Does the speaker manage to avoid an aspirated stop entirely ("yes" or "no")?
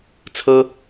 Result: no